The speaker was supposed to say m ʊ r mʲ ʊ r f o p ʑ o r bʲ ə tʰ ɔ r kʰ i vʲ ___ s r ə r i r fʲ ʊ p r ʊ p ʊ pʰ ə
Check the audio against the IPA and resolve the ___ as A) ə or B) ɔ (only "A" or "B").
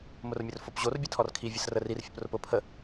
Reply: A